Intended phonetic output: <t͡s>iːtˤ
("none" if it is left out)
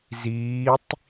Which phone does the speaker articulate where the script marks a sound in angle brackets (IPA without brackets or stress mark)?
z